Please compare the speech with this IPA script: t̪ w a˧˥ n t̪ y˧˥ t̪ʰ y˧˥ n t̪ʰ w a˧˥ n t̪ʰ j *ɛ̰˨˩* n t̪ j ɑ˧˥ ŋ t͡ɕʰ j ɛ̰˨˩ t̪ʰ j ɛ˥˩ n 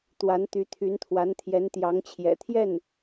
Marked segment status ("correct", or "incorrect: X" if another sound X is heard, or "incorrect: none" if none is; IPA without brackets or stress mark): incorrect: ɛ˧˥